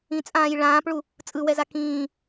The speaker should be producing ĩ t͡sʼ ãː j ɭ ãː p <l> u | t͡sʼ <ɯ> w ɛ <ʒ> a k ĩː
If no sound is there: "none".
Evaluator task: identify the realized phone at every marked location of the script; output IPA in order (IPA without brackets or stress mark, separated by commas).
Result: ɭ, ɯ, z